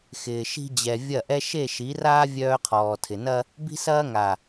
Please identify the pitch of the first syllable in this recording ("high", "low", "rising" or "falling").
low